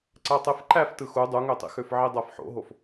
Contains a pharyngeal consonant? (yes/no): yes